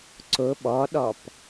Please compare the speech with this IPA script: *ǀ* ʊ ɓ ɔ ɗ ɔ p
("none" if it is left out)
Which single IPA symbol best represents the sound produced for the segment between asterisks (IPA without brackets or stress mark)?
ǀ